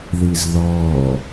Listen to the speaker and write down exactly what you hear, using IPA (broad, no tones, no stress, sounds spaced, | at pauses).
ð i z ð ɔː